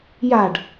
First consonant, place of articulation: palatal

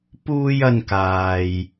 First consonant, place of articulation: labial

